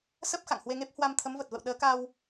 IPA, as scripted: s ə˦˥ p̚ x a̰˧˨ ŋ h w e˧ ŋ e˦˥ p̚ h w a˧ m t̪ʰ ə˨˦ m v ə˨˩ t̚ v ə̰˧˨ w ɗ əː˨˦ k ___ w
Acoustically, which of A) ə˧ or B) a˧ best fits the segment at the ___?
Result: B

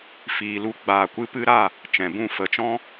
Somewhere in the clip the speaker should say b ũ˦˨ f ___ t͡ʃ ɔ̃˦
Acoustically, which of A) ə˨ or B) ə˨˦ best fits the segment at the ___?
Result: B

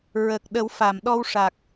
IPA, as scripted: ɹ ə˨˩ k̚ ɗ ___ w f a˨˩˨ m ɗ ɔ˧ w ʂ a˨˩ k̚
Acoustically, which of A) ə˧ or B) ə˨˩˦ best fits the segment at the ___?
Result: B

